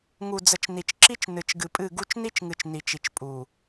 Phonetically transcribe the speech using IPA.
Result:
ŋu˨d͡zə˨t͡ʃ ni˨t͡ʃǁi˦t͡ʃnɨ˨t͡ʃ ɡɨ˨pʼɨ˦˨ɡu˦t͡ʃ ni˦t͡ʃŋɨ˨t͡ʃ ni˨t͡ʃi˨t͡ʃ pʼu˨

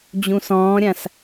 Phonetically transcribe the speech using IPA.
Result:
d͡ʑũsɔ̃ːɾʲãs

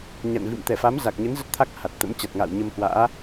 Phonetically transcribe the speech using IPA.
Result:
ɲa̰˧˨nvḭ˧˨m t̪ɛ˧˩fa˨˦mza˨˩k̚ɲə˨˦n zə˦˥t̚t̪ʰa˦˥k̚ha˨˩t̚ t̪ə̰˧˥m t͡ɕa˨˩t̚ŋa̰ː˧˨wɲə˧mhwa̰ː˧˥

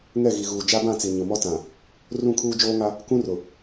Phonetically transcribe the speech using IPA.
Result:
ŋɛ˦˨ɣi˨ɣuː˨ d͡ʒa˦bã˦˨t͡si˨ ɲʊ˨mɔ˦tã˨ | rũ˦˨ kʰuː˦d͡ʒoː˦ŋa˦ | kũ˦rʊ˨

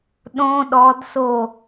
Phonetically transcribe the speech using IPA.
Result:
ɗõ ɗɔd so

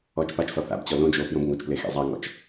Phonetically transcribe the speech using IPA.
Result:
ɔt͡ʃ pat͡ʃsɔ θa̰bt͡ɕɔ lõd͡ʒoː pjõbŋot͡ʃple xḛzˤaŋɔ̰t͡ʃ

